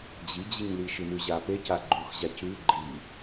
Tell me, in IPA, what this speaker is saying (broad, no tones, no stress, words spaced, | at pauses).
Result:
d͡ʑid͡ʑiɲli ʃɨnʉʑape caɡ͡ǃuxʑacʉ ɡ͡ǃi